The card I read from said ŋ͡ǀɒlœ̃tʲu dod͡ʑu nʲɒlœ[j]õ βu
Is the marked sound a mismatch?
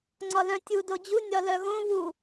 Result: yes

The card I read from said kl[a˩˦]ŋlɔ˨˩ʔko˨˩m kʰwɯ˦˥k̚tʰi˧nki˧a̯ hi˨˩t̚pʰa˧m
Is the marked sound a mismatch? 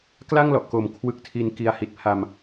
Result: yes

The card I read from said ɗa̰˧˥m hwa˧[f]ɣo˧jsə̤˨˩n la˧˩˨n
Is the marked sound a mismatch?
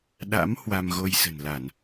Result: yes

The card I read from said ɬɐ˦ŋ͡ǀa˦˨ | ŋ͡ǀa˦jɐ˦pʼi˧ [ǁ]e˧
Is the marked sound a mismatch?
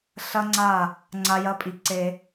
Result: yes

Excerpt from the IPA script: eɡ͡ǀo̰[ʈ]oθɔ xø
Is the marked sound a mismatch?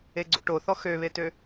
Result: no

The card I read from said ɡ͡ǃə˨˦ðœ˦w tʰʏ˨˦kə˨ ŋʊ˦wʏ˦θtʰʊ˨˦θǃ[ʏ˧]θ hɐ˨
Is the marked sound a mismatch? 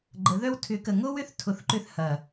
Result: no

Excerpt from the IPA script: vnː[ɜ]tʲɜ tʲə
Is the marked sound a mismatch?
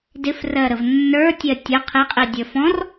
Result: yes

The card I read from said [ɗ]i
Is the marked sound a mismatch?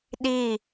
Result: no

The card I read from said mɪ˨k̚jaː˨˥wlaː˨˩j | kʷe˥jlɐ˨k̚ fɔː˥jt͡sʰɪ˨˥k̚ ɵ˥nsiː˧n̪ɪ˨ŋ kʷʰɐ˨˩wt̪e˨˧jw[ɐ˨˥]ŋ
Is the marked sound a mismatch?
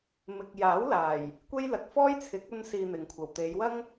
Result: yes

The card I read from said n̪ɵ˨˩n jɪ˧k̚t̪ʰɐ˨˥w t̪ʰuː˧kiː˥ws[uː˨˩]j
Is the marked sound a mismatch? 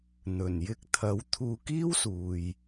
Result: yes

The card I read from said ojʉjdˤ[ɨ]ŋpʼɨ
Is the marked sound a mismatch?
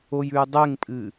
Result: yes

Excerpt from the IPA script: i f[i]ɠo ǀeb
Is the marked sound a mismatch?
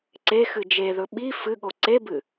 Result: yes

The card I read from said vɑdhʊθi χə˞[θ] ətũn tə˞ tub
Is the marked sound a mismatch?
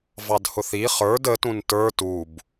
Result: yes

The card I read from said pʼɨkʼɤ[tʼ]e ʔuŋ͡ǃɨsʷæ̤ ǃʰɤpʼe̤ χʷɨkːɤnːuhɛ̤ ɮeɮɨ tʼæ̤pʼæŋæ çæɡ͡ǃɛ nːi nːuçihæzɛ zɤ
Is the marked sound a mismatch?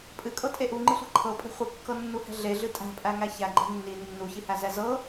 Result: no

